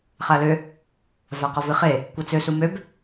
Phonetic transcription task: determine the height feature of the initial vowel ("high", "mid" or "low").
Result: low